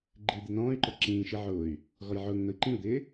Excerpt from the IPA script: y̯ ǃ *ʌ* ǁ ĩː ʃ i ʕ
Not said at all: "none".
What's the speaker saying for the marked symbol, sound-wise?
ʌ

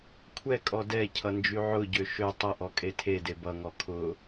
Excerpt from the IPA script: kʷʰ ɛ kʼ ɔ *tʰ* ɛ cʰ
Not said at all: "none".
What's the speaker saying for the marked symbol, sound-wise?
d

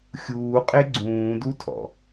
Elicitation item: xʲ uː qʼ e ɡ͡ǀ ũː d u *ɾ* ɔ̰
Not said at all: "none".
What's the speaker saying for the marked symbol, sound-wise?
tʰ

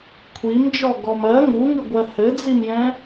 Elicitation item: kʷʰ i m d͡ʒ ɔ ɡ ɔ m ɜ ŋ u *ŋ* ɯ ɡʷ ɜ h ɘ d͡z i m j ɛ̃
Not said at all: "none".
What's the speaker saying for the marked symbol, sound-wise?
ŋ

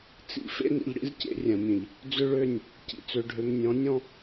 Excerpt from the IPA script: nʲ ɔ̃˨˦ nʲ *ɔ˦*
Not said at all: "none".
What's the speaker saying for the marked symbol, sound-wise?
ɔ̃˦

